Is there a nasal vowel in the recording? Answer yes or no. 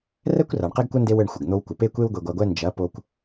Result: no